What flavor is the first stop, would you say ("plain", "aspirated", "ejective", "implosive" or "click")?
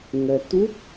plain